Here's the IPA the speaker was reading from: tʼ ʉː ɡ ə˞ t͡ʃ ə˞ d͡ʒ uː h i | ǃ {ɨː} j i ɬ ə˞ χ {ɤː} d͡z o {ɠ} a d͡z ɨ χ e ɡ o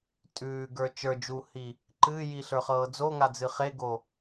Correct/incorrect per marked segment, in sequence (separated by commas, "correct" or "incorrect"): correct, correct, incorrect